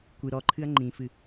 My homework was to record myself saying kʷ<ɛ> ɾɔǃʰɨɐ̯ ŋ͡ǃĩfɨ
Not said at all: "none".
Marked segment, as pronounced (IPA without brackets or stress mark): ɨ